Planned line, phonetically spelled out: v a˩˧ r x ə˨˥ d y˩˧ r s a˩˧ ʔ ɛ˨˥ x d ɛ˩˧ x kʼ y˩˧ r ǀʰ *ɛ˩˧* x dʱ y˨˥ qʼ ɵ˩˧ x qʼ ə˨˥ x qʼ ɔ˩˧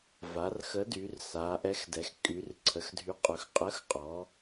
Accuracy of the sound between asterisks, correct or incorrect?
incorrect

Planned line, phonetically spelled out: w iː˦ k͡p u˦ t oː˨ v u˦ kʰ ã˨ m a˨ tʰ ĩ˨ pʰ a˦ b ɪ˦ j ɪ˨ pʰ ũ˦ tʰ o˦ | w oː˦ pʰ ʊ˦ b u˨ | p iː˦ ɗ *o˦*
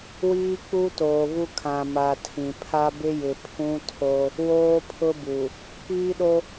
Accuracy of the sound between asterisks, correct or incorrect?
correct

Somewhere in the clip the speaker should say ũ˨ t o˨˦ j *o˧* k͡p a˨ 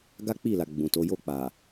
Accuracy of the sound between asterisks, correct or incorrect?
incorrect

